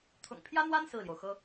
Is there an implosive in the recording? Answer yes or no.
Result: no